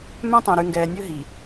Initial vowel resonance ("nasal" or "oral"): nasal